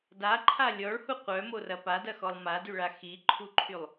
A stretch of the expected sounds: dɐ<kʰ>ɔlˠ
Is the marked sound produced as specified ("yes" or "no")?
no